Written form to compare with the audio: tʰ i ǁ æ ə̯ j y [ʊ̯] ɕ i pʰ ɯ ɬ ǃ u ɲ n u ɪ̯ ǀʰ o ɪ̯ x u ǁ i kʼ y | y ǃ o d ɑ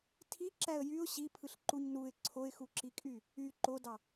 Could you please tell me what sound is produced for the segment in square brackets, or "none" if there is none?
ʊ̯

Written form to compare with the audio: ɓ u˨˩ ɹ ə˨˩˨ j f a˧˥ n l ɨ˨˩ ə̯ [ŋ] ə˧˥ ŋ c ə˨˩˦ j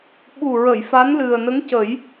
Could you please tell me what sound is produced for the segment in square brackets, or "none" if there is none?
n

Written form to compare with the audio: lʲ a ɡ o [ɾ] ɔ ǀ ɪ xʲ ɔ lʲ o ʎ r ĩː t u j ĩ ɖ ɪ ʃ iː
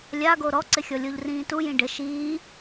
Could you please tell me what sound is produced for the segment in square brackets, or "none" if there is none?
ɾ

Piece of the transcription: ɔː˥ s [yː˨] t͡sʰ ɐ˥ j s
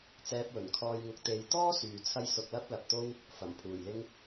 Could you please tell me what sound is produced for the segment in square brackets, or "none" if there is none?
yː˨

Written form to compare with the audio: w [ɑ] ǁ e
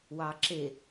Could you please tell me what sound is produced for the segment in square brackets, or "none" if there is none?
ɑː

